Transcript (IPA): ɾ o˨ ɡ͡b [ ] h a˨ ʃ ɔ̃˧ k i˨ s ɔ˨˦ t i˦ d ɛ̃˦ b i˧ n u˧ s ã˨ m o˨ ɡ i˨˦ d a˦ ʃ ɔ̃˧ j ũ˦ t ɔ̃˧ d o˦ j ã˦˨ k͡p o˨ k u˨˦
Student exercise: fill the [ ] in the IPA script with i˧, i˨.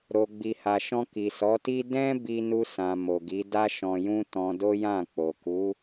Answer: i˨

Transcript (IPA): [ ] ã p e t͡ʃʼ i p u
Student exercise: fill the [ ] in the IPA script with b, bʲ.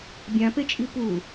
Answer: bʲ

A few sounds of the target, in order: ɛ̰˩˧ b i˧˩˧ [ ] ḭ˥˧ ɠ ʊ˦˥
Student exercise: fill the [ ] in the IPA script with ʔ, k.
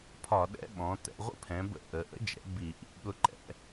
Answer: ʔ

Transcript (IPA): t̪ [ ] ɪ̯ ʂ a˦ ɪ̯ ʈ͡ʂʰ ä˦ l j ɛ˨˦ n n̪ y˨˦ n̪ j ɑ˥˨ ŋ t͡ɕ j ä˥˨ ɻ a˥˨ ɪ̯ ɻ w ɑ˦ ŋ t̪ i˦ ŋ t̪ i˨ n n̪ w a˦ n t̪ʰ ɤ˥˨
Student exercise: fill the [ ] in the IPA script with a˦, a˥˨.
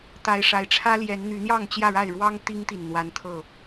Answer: a˦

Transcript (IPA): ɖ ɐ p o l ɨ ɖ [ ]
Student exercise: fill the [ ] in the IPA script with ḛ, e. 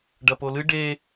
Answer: e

